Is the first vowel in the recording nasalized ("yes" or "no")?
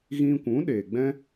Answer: yes